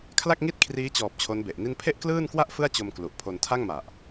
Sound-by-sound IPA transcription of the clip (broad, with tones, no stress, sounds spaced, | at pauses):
kʰ l a˥˩ k̚ ŋ i˥˩ t̚ kʰ r iː˦˥ t͡ɕ ɔː˨˩ p̚ t͡ɕʰ o˦˥ n b e˨˩ ʔ n i˥˩ n pʰ e˥˩ ʔ k l ɯː˥˩ n k w a˥˩ ʔ f ɯ˥˩ a̯ t͡ɕ o˧ m k l u˨˩ ʔ pʰ o˧ n tʰ a˥˩ ŋ m a˨˩ ʔ